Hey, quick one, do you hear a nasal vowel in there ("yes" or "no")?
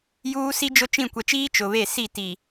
yes